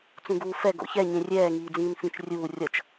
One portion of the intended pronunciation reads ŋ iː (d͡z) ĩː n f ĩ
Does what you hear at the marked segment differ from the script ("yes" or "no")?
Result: no